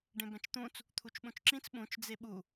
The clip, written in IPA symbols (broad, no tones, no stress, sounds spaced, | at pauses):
ɖ ẽ b ɛ̃ t͡ʃ t̪ ũ t͡s | t̪ʰ u t͡ʃ ɓ ũ t͡ʃ ǁ ĩ t͡s ɓ ũ t͡ʃ d͡z e ɓ u